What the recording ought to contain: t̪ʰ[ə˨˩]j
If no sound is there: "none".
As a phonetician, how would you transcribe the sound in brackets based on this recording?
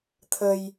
ə˧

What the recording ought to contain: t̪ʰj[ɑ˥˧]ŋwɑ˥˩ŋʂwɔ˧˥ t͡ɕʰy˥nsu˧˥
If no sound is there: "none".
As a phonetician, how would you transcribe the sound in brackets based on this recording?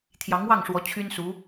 ɑ˧˥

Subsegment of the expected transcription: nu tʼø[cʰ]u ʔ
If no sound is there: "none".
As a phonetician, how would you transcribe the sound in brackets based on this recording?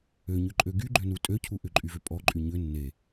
cʰ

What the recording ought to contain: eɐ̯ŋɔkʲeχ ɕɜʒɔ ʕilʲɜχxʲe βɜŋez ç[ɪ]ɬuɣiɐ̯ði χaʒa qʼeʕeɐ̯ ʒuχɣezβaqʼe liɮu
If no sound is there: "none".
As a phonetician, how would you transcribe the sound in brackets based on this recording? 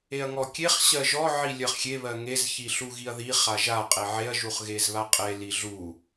i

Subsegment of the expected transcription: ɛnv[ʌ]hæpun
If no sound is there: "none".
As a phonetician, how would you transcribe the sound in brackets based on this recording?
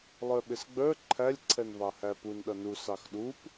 ɑ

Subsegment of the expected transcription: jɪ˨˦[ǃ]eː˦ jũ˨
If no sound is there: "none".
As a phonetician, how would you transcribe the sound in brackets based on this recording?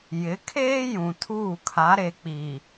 kʰ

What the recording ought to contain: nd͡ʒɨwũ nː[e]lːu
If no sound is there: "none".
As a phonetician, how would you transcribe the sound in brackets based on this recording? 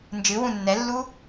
ɛ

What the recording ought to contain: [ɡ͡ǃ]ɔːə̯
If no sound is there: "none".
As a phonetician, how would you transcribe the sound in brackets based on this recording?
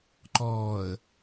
ǃ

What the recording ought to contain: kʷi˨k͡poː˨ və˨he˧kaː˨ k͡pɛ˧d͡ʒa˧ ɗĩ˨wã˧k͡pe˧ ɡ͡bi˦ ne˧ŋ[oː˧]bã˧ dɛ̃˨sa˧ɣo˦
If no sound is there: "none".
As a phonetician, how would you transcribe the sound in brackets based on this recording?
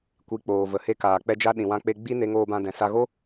oː˧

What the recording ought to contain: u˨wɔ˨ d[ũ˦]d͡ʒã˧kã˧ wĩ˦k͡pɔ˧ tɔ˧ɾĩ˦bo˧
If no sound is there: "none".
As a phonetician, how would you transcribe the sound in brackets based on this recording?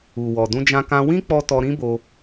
ũ˧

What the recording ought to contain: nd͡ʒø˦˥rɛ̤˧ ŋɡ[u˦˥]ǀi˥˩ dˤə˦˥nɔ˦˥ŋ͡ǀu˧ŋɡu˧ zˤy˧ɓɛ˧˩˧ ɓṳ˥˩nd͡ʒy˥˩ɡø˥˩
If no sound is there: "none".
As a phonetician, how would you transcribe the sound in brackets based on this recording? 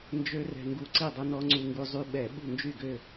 u˧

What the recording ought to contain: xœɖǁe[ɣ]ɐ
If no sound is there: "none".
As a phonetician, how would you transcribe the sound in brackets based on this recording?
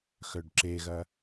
ɣ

